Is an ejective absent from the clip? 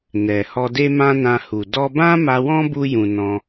yes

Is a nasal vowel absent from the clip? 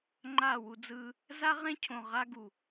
no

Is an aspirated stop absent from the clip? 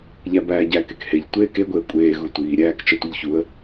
yes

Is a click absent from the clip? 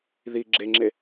no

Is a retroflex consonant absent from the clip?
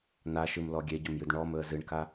no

